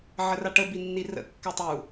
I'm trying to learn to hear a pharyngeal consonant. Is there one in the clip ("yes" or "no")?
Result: yes